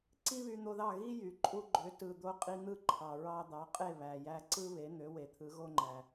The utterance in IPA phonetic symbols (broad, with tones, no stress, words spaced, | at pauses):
ǀi˥βy˧n̪o˧ðɑ˥˩ ɣi˥jy˩ ǃʼu˧ɡ͡ǃø˩˥ tɯ˩ d̪o˧qʼi˧n̪ɯ˥˩ ǃʰɑ˩ ɹɑ˧d̪ɑ˩˥qʼe˥˩ βæ˩jæ˧ ǀɯ˥βe˩˥n̪ø˩˥ we˩t̪ʰɯ˩˥ɣo˥ŋ͡ǃæ˩